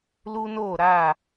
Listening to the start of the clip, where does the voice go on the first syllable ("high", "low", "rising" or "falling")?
high